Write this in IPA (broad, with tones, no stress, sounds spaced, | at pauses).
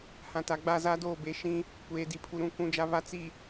h ã˨ t a˨ ɡ͡b a˦˨ z a˦ d oː˦˨ b e˨ ʃ ĩ˦ | kʷ eː˨ d i˨ pʰ u˨ ɾ ũ˨ k ũ˨ d͡ʒ a˨ β a˨ t͡s i˨